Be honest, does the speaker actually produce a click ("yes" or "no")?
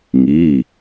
no